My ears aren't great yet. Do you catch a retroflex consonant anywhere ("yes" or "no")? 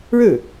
yes